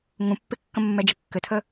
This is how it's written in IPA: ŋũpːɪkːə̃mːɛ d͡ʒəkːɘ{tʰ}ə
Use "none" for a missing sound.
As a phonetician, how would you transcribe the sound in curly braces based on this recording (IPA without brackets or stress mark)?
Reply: tʰ